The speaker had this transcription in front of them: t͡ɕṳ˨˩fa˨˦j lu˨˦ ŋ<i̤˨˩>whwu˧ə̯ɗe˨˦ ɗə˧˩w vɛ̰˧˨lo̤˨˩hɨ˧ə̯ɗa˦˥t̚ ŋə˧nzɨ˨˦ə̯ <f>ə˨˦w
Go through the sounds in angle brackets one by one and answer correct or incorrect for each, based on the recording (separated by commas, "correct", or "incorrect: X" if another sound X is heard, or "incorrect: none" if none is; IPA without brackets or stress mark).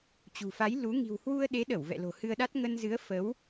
correct, correct